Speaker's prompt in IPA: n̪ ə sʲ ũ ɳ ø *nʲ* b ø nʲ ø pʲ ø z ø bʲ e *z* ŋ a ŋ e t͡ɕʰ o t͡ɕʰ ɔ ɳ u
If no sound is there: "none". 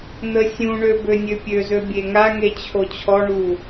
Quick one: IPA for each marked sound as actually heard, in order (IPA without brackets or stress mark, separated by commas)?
none, none